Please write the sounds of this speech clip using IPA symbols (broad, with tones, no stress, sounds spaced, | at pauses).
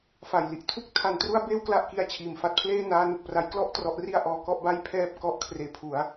f a˨˩ j l i˥˩ ʔ tʰ u˥˩ k̚ tʰ a˧ n t r u˥˩ a̯ b eː˥˩ w k l a˥˩ ʔ k i˦˥ a̯ t͡ɕʰ iː˨˩ m f a˦˥ t̚ pʰ l eː˥˩ n aː˦˥ n u˨˩ k̚ p r a˦˥ j k l ɔ˥˩ ʔ t r ɔ˦˥ ʔ r i˥˩ a̯ ʔ ɔː˧ k ɔ˥˩ ʔ b a˥˩ j pʰ ɛː˥˩ p̚ k ɔ˦˥ ʔ kʰ r eː˨˩ pʰ u˩˦ a̯